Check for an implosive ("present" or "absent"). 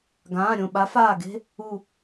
present